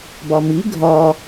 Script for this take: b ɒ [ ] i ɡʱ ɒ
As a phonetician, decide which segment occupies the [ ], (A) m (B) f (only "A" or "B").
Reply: A